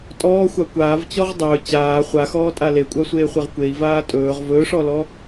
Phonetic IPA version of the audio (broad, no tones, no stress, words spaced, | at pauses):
tʼɔːxʷa kʷaːvt͡ɕɔʁ dˤɵː t͡ɕaː χʷaxɔːtʼa lekʷʼasʷeːχʷeʁ kʷei̯vaː tʼɵːʁ vɵːʂɔlɔ